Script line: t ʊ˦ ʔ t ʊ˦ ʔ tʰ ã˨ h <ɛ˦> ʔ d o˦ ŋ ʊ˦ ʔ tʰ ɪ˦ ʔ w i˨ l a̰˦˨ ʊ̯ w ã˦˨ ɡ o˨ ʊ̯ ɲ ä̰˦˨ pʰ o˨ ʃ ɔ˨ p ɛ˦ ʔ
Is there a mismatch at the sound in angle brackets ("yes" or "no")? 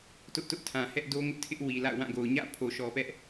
no